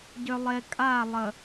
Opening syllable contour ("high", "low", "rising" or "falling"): low